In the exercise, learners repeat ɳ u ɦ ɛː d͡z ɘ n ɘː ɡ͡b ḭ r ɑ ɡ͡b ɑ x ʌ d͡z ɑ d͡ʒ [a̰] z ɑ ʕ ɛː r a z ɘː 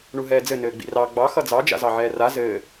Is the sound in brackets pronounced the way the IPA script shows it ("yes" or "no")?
yes